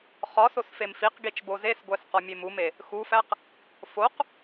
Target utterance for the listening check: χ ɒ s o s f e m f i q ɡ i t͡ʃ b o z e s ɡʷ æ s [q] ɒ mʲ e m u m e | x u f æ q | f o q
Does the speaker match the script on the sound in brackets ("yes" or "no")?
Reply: yes